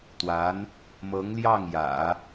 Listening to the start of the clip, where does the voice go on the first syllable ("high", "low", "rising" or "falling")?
rising